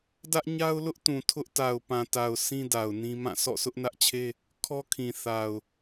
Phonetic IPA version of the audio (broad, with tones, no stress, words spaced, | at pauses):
dä˦ʔɲa˦ʊ̯lʊ˦ʔtũ˨ tʰʊ˦ʔ ta˨ʊ̯pã˨ta˨ʊ̯ sĩ˦da˨ʊ̯ nĩ˦ mã˦˨ sʰɔ̰˦˨sʊ˦ʔnä˦ʔt͡ɕʰe˦ | kʰɔ˦kʰĩ˨θa˨ʊ̯